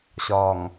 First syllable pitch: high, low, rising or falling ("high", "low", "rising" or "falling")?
low